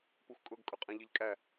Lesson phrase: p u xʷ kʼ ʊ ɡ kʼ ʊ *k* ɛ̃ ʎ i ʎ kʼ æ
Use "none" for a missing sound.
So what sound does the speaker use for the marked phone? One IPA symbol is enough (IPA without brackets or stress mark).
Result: qʼ